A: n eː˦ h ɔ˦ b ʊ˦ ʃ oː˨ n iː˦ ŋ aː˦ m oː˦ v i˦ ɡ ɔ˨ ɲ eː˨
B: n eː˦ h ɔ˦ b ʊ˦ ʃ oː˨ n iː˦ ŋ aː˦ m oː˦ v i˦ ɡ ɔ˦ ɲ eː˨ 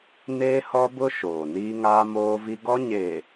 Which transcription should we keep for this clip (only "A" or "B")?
B